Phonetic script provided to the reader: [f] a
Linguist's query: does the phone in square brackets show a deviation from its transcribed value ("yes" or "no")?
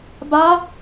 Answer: yes